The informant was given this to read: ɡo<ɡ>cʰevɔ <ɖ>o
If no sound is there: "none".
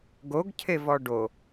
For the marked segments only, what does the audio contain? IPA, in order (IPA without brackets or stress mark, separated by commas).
ɡ, ɖ